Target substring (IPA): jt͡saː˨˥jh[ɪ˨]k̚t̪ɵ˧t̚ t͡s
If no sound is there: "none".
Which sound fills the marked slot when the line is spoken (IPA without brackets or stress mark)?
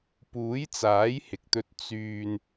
ɪ˨